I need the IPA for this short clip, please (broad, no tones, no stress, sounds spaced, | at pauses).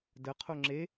d ə qʰ o ŋ͡ǁ e